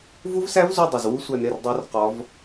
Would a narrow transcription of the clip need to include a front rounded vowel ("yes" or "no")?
no